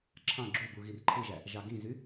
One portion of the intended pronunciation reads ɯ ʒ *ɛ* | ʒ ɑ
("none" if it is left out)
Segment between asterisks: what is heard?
æ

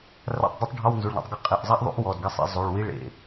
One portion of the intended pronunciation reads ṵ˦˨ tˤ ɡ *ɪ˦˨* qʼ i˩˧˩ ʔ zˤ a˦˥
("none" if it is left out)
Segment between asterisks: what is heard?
ɪ˦˨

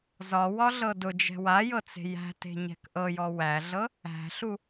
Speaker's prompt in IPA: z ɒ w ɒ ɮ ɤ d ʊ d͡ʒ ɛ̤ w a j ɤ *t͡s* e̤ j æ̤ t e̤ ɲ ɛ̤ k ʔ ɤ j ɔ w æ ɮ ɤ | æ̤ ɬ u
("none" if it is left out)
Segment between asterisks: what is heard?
t͡s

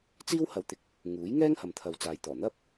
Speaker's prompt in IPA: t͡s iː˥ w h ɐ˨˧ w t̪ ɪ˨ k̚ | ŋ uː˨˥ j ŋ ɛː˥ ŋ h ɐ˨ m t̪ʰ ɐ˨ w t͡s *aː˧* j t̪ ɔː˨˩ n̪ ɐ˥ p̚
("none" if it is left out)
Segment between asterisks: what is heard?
aː˧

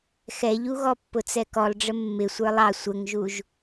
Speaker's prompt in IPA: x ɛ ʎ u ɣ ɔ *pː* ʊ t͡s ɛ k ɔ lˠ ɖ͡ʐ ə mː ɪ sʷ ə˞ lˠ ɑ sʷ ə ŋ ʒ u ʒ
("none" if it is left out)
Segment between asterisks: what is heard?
pː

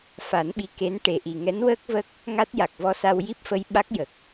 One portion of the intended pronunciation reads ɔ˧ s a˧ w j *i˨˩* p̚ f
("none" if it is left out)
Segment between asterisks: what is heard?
i˦˥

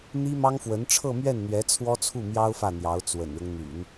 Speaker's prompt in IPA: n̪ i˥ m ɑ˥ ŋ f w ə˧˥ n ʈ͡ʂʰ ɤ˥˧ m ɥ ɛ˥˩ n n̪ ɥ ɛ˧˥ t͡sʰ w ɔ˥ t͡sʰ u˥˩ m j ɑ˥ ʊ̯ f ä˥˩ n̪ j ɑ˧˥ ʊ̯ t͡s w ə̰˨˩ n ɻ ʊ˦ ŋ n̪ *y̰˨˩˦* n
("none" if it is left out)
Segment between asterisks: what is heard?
y̰˨˩˦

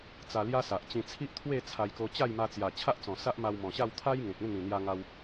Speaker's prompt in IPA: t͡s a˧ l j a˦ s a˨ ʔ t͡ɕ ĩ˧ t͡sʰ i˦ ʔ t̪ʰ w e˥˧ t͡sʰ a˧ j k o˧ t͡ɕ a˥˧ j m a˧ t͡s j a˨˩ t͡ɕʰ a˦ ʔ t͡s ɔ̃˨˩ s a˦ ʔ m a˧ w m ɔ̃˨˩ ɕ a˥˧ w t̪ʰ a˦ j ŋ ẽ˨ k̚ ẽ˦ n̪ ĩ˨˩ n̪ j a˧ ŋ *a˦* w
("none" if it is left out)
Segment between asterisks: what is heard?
a˧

